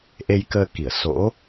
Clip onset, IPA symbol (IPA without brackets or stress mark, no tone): ʔ